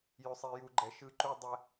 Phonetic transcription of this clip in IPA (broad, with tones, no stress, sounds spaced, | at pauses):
j ʉ˨ sˤ i˨ j u˨ ɡ͡ǃ ɛ˨ ʃ ɯ˦ ǃ u˦ dˤ ɛ˦